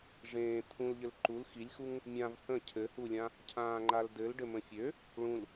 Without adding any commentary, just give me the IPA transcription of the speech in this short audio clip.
ʐẽː t̪ʰũlʎɘl ǃul xilʲxuŋ | mʲãv hə̃ cʰɘhulʲã | cʰãːŋ͡ǃaldɘl ɖɘmə̃fʲø | ɭũl

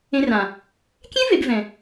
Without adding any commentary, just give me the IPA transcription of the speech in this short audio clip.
ẽ˧rã˨ | kʲẽ˦ve˨b vɛ̃˨

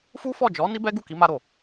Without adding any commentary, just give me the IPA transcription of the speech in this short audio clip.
fu˦fɔ˦˨ d͡ʒɔ˨˦ ni˦bɛ˦ɡu˦˨ ki˨˦ma˧ɾo˨

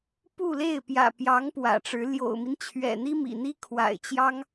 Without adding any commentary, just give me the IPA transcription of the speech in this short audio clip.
pu˥˧le˥˩ɪ̯pjä̰˨˩ pjɑ˧˥ŋ pwä̰˨˩ʈ͡ʂɻ̩˧˥ ljo̰˨˩ʊ̯mi˦nt͡ɕʰɥɛ̰˨˩n̪i˥ mḭ˨˩n̪i˥kʰwa̰˨˩ɪ̯ t͡ɕjɑ˥ŋ

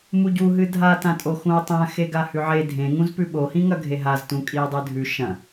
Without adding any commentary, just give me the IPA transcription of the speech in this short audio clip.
muɟuɦɨ dʱatãtʼo xũo̯tˤã xeɡahʉʕe dʱẽŋũz pʉɓohĩŋɐ ɡʱeɦaztũ kʼie̯dˤɨdʱʉ ʃɐ̃

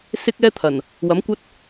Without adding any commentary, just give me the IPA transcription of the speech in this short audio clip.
sɪ˥k̚ɛː˥t̪ʰɐ˨˩n | wɐ˨˥mkʷɐ˥t̚

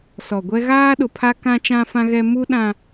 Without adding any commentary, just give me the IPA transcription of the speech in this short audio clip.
sɔ˨ɡʷɛ˦ ɣaː˦ɗʊ˨pʰa˦ kã˦t͡ʃã˦fã˦ɣɛ˦ mu˦ɗã˦

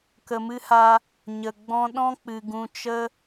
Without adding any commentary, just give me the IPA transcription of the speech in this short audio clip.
kə˨mɨ˧ha˧ | ɲə˨ɡ͡bɔ̃˦ ɗɔ̃˦k͡pɨ˨ɡũ˧ t͡ʃə˦

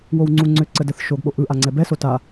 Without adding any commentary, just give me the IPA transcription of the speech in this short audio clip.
wowŋ͡ǀuŋ͡ǀʏ ǀədəθ ʃoɡɓo ʔɯʔaŋ͡ǀɛ bɛso ta

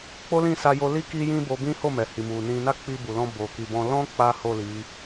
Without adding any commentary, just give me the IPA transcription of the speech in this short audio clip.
k͡po˦lĩ˦˨sa˧ jo˧li˦ ki˦jĩ˦bo˧ bĩ˦ho˦˨mɛ˨hi˨ mu˨nĩ˧ na˦k͡pi˧bu˨lɔ̃˧ bo˨ki˨bɔ̃˧ lɔ̃˦ k͡pa˦ho˦˨li˨˦

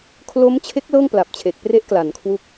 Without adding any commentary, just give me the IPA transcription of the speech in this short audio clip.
kʰlo˦˥mt͡ɕʰe˦˥k̚ lɤː˥˩ŋpla˨˩p̚t͡ɕʰe˨˩k̚pre˦˥ʔ kla˩˦nkʰwu˦˥k̚

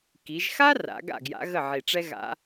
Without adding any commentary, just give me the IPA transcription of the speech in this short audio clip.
ki˩˧ʒxa˥ra̰˩˧ ɡa̰˥˩ɡja̰˧˥ ɣə˥˩ʕi˧˩ ʈ͡ʂɛ˥ɣa̰˧˥

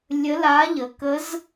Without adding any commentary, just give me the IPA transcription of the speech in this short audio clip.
lʲə˧˥la˧˥ ʎə˨kə˧˥z

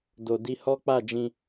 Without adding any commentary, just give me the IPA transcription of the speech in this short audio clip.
do˨di˧ hɔ˦k͡pa˦˨d͡ʒĩ˧

